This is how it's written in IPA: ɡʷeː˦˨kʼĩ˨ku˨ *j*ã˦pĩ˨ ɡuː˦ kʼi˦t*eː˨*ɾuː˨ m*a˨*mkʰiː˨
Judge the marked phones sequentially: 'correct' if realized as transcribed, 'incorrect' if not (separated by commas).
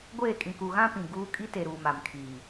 incorrect, incorrect, correct